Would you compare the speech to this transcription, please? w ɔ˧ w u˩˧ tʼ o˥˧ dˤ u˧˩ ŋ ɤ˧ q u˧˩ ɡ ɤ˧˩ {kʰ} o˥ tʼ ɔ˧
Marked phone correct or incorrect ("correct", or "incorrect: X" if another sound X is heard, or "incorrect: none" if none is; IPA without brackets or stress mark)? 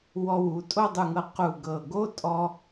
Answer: incorrect: ɡ